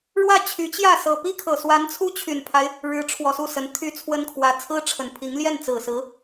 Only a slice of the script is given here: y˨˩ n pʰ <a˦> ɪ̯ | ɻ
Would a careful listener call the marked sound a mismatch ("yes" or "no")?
no